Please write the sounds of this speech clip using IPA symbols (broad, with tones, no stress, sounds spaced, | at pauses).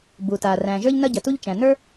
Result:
b u˩ t a˩ r æ̃˩ ʒ ə˞˥ ʎ n ɐ˥ ɟ ɐ˩ t u˥ ʎ t͡ʃ æ̃˩ n ə˞˥